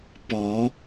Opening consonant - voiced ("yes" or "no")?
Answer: no